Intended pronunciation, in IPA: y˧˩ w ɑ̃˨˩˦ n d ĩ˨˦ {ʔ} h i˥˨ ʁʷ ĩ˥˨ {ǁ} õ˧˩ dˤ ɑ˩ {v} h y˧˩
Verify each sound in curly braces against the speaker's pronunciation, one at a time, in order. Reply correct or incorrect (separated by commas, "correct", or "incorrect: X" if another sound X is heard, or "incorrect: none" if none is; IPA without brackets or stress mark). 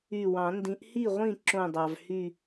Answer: correct, correct, correct